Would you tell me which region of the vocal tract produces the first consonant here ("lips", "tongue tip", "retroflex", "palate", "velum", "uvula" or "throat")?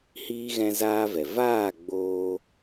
throat